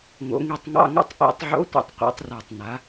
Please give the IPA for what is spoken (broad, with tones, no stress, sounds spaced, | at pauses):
ŋ o̰˩˧ ŋ i˨˩ tˤ ŋ ɑ̰˧˥˧ ŋ o̰˥˨ tˤ ʔ ḭ˨˩ tˤ ʕ o̰˧˥ tʷ ḭ˨˩ tˤ qʷ ɑ̰˩˧ tˤ r a˨˩ tˤ n a˩˧